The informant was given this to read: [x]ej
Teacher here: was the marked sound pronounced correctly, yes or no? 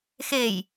yes